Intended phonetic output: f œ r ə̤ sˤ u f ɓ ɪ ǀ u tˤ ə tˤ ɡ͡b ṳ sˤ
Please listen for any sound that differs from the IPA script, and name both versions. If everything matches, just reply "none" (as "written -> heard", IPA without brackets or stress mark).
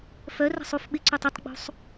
none